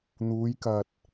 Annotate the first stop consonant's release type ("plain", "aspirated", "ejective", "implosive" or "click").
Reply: plain